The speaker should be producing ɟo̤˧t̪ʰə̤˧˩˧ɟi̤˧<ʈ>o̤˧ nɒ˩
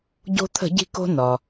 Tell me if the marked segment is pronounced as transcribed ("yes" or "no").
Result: no